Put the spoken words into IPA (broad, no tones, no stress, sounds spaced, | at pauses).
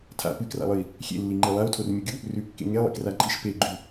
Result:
tʰ a̰ p ɨ k r a̰ lˠ ɨ i̯ | xʲ ḛ lː i ŋ͡ǃ i lˠ a u̯ tʰ o r mʲ u ɡʲ u | r ʉ kː ḛ ŋ e lˠ ḭ k r a ǃʼ i ʃ p e ɡ͡ǃ ʉ